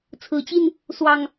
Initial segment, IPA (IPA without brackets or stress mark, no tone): t͡sʰ